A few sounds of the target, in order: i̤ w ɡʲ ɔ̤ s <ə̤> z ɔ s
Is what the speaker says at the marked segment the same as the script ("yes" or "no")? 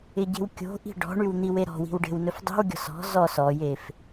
no